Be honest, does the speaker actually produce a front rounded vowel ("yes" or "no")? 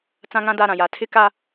no